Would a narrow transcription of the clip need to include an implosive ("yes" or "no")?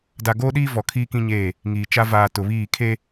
yes